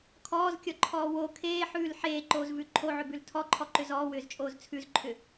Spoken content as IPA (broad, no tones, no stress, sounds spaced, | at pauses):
kʰ ɔː z kʲ ɔ ǃʰ ɔː w o kʰ eː ħ ʉː l ħ eː ǃ oː z v ʉ ǃʰ o ʕ ʏ b ʉ l tʰ ɔ ǃʰ ɔ ǃ ʏ z ɔː w ʏː z t͡ʃʼ oː z t͡sʰ ʉ z ǃʰ ʏ